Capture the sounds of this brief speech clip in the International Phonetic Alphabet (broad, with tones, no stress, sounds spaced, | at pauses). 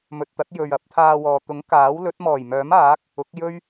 m ɵ˨ t̚ t̪ ɐ˨˥ t̚ j ɵ˨ ɥ ɐ˨˥ p̚ t̪ʰ aː˧ w ɔː˨ t̪ ʊ˨˥ ŋ k aː˨˥ w l ɵ˨˥ t̚ m ɔː˨˩ j m œː˨˥ m aː˨˥ k̚ | ʊ˨˥ k̚ j ɵ˥ ɥ